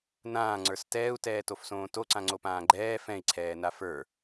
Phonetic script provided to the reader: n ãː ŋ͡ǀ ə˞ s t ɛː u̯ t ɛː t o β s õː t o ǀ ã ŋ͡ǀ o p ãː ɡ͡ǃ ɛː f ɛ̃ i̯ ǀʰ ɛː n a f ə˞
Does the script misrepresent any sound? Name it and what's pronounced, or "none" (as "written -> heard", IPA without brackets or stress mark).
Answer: β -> f